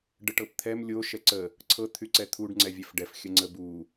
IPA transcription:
ɖ ə ʈ ɤ p t̪ʰ ɛ m lʲ o ʃ ɛ ǀ ə | ǀʰ ɤ t̪ʰ y ǀ ɛ t̪ʰ u ɖ ŋ͡ǀ ɛ vʲ ɛ f ɖ ɛ f xʲ ə ŋ͡ǀ ə b u

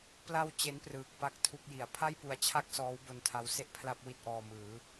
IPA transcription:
p l a˧ w t͡ɕ e˦˥ n p r ɯː˨˩ k̚ p a˥˩ k̚ tʰ u˥˩ k̚ j i˩˦ a̯ pʰ a˥˩ j p u˨˩ a̯ t͡ɕʰ a˥˩ k̚ s ɔː˦˥ w b o˧ n tʰ a˦˥ w s e˥˩ ʔ pʰ l a˥˩ p̚ w i˥˩ t̚ ʔ ɔː˧ m ɯː˩˦

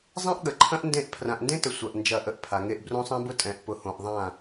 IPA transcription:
zˤ ẽ˦ ʔ ɠ ə˨ ǃʰ ɐ̃˦ ʔ n d ẽ˦˨ ʔ pʰ r ã˨ ʔ n d ẽ˦ t ə˨ sʷ ɐ˨ ʔ n d͡ʒ ɐ˦˨ ʔ ə˦ ʔ pʰ a˨ ŋ e˦ ʔ b r õ˦ sˤ ẽ˦ b ʊ˦ tʼ ɛ̃˨ ʔ p ʊ˨ h õ˨ ʔ ðˤ ã˦˨

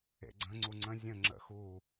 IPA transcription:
ḛ ɡ͡ǀ ə̃ ŋ͡ǀ u ŋ͡ǀ ə̃ zʲ ə̃ ŋ͡ǁ ə̰ x u

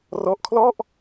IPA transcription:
r ɔ˦˥ ʔ kʰ l ɔ˥˩ ʔ

